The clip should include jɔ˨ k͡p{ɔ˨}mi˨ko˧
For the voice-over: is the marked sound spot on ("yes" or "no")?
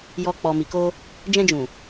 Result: yes